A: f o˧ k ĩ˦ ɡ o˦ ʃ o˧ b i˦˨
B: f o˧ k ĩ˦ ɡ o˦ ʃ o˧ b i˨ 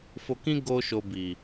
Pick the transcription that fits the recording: B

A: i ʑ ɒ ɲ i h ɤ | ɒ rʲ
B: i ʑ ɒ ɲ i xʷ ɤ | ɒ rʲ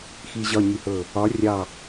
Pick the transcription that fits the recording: A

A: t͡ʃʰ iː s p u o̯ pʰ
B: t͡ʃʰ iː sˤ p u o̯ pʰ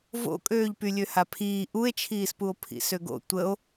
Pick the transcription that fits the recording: A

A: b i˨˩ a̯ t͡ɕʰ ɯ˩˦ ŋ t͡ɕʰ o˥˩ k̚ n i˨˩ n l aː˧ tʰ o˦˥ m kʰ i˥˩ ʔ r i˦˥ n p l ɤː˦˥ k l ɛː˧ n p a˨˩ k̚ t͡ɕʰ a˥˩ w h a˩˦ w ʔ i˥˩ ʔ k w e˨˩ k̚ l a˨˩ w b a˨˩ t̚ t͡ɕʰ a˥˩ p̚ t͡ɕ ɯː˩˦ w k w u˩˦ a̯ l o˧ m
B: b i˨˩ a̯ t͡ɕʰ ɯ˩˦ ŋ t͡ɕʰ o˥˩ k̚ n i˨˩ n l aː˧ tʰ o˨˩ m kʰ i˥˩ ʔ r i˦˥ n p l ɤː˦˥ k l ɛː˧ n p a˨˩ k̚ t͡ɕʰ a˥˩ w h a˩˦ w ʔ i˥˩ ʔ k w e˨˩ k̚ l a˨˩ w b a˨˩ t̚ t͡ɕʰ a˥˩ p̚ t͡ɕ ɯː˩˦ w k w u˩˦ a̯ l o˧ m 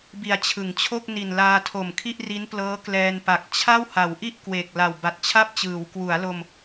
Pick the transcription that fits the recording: B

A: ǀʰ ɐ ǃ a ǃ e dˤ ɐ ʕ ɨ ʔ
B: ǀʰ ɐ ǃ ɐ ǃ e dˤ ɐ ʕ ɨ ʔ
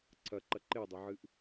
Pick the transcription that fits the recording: B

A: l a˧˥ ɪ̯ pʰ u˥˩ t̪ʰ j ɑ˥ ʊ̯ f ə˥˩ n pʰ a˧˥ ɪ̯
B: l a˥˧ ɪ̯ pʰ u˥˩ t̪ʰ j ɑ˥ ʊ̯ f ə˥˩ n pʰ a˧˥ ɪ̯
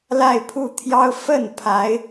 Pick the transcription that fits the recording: B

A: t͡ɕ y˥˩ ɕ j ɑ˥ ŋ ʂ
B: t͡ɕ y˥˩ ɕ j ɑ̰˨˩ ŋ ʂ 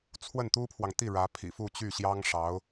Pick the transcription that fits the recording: A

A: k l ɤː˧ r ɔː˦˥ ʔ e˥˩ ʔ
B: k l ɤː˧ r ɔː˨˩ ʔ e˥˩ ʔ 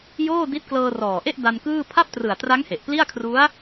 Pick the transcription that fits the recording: B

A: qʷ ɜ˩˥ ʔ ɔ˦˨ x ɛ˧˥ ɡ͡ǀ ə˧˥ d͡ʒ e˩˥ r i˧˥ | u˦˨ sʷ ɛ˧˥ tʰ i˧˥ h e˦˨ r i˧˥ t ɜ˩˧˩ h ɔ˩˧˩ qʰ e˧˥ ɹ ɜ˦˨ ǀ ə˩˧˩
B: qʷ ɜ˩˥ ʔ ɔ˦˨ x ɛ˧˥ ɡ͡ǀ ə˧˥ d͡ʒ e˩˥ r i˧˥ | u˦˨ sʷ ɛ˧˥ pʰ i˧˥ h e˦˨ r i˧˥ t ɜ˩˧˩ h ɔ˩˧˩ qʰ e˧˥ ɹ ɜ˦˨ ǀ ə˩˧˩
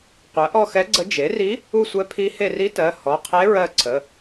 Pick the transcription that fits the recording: B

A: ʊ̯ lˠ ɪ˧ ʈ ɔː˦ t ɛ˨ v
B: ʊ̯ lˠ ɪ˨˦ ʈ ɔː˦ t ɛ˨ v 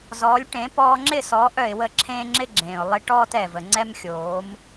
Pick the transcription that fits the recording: A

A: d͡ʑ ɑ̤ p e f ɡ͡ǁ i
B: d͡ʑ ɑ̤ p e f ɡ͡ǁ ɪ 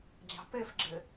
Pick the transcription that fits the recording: B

